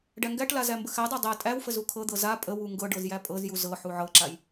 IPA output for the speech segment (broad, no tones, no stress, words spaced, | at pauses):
ɖæŋɡæʈla zæmbəxædˤa dˤæ tʼæwfə zukʰɤd̪ɤ za pʼəwu ŋɡɤ ɖɤzjæpʼɤzju zɤħu ʕɤǁaj